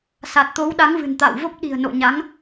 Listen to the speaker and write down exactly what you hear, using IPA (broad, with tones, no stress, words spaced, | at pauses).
sa˨˩t̚t̪o˨˦wɗa˨˦ŋvɨ̤˨˩n t̪a̰ː˧˨wvo˦˥p̚ ɗi̤˨˩ə̯no̰˧˨ɲa˨˦ŋ